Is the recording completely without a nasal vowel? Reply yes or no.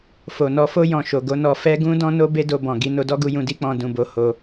no